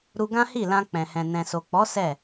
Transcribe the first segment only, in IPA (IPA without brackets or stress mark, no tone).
ɾ